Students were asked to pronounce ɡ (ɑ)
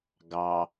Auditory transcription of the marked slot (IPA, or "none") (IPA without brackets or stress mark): ɑ